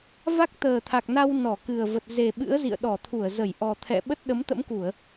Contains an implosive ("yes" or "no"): yes